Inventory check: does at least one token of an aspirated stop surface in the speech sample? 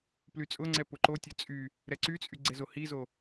no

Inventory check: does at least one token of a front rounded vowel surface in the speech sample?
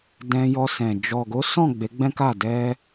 no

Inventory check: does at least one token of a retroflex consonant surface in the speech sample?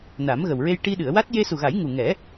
yes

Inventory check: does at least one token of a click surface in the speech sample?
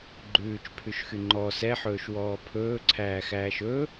yes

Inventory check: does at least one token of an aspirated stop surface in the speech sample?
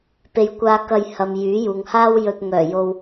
no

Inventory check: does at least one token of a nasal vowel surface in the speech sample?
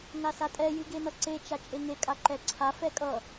no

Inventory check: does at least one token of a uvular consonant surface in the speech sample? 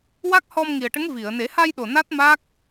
no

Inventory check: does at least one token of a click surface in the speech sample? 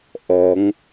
no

